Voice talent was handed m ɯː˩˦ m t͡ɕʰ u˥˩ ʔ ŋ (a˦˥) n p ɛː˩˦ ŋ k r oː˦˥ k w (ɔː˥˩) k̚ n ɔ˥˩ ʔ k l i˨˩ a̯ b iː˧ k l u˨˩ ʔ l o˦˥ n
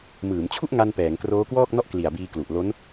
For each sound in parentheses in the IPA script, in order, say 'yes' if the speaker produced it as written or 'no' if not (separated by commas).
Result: no, yes